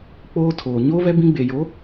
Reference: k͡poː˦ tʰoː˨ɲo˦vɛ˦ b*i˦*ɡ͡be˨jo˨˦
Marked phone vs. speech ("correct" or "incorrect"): incorrect